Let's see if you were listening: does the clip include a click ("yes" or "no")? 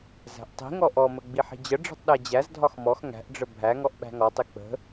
no